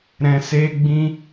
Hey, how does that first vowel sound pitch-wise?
low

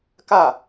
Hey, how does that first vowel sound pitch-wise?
falling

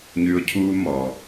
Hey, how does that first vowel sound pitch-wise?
high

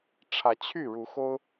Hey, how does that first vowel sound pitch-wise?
rising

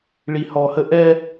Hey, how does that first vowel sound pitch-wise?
low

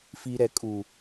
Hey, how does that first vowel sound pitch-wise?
low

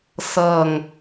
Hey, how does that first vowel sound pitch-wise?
low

